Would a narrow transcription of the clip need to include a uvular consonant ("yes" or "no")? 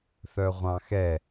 yes